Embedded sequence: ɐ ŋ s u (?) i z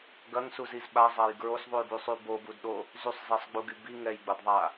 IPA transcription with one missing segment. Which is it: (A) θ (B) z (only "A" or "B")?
B